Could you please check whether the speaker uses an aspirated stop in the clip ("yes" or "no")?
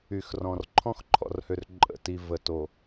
yes